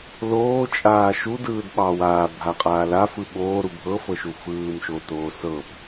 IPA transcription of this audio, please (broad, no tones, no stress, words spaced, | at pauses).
loːt͡ʃʼaː ʃudɯːdɓɑ waːbʱaqʼaː lafɯ ɓoːɾu bʱɤfɤʃu fɯːmʃotoː sɤp